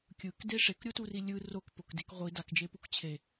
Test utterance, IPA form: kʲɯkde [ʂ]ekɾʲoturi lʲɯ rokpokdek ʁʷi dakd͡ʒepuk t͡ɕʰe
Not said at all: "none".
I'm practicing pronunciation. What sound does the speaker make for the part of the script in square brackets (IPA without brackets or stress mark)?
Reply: ʂ